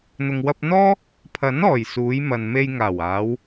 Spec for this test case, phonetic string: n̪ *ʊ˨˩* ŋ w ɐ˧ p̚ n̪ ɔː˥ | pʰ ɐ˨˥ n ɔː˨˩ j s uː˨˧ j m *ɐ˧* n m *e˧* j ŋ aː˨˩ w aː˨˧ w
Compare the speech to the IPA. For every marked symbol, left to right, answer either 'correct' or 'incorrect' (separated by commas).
incorrect, incorrect, correct